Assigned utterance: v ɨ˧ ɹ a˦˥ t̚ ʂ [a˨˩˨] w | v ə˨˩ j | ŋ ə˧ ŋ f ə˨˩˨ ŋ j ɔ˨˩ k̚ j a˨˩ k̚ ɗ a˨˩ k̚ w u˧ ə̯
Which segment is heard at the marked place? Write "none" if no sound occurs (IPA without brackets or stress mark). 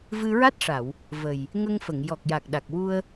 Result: a˨˩˨